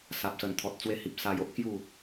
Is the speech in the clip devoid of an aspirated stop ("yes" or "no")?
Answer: no